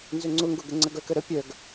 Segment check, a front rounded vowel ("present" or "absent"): present